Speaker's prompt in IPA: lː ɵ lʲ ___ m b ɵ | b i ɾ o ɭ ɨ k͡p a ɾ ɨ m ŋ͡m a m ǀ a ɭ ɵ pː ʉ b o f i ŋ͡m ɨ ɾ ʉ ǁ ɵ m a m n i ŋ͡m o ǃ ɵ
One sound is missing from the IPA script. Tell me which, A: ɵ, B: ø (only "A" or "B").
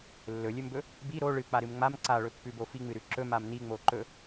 A